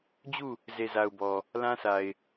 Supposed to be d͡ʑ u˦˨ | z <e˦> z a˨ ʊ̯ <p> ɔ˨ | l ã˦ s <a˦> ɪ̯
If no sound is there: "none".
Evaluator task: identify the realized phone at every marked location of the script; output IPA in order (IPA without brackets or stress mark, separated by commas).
e˨, b, a˨